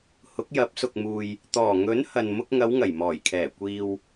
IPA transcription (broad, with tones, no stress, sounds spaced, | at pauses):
h ʊ˨˥ k̚ j ɐ˨˥ p̚ s ʊ˨ k̚ m uː˨ j | t̪ ɔː˨˩ ŋ ɵ˨˥ n h ɐ˨ n m ʊ˧ k̚ ŋ ɐ˨˧ w ŋ ɐ˨˩ j m ɔː˨˩ j kʰ ɛː˨˩ kʷ iː˨ w